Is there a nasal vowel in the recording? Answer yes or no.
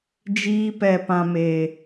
yes